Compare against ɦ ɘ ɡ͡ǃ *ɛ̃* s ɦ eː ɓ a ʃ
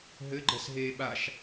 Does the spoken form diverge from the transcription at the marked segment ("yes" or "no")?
yes